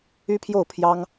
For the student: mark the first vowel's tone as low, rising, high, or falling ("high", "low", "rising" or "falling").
high